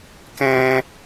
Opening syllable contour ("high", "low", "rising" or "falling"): high